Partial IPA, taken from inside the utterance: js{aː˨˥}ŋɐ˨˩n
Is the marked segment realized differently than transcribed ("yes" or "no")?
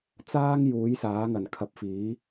no